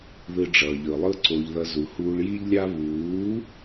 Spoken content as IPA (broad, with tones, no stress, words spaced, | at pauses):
ðɯ˧ ɖ͡ʐʌː˨ʎɯ˨lˠɯ˦ ǀo˧ʎðʌ˧ zu˨huː˧ɭji˦ʎlʲa˦ βuː˨˦